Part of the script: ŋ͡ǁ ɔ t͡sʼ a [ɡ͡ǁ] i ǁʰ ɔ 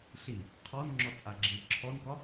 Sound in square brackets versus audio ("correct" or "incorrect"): correct